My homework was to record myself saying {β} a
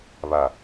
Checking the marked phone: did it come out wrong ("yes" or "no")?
no